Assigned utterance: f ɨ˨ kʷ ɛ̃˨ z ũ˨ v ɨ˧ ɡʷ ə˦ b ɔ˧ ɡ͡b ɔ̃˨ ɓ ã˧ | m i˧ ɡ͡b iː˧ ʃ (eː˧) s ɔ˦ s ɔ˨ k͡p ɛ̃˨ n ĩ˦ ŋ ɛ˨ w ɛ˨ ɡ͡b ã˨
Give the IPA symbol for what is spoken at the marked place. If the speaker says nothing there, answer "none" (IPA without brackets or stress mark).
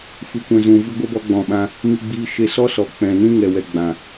e˧